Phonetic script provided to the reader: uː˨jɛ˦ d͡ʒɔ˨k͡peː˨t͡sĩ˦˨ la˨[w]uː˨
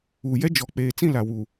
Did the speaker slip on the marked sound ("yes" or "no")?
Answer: no